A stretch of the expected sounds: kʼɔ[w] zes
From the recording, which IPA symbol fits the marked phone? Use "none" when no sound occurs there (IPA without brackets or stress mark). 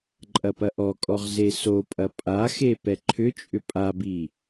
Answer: ʁ